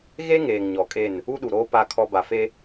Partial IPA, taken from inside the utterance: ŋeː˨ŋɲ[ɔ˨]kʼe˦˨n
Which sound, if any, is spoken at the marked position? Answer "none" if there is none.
ɔ˨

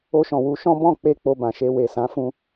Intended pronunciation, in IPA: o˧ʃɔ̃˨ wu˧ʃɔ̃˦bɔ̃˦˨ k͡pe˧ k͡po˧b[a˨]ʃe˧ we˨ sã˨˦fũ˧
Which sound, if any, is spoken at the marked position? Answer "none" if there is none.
ã˨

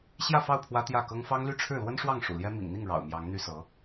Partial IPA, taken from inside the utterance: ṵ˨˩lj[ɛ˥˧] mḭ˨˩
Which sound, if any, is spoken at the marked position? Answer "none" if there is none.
ɛ˥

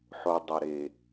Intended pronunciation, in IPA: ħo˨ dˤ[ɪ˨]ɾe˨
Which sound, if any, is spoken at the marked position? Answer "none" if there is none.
ɪ˨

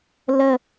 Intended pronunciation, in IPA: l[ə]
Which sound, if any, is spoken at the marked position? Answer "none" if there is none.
ə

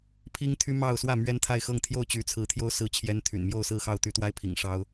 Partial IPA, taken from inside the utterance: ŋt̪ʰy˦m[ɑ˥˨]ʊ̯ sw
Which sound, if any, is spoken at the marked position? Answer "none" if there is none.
ɑ˥˨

